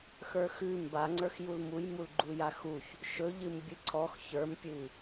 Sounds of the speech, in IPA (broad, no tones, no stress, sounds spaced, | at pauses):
x ə˞ x ʉ m b a ŋ͡ǀ ə˞ x j u l m u j m u l ɡ͡ǃ u j a x u ç | ʃ ɵ ʎ ɨ m bʲ ɨ ǀ ɔ x ç ə˞ m pʲ ɨ